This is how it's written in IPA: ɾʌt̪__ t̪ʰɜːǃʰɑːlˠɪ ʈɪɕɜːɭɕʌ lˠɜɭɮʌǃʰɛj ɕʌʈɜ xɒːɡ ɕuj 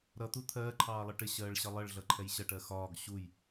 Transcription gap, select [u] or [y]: u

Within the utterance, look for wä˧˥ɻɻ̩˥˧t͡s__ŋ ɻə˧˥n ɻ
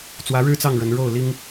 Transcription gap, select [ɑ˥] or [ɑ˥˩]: ɑ˥˩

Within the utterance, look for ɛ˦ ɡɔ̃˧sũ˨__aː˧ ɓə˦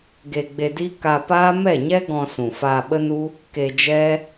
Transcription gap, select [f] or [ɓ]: f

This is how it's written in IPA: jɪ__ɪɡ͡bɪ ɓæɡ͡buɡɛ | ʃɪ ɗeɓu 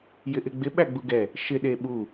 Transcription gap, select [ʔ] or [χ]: ʔ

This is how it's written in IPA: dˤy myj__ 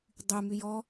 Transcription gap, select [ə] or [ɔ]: ɔ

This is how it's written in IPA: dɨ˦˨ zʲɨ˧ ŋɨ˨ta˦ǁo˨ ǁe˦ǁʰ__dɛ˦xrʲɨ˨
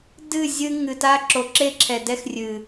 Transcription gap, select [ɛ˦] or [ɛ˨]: ɛ˨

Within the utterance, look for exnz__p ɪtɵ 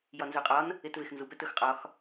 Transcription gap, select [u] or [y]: u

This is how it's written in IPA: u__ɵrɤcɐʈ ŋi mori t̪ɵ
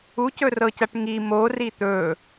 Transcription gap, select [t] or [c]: c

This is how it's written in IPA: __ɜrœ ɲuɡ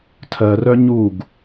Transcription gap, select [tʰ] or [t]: tʰ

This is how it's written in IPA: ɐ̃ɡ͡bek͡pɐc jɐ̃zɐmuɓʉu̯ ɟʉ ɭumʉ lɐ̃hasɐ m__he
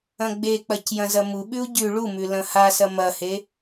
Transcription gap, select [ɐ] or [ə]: ɐ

